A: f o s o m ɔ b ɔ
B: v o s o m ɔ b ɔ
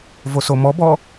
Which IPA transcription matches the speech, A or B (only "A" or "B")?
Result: B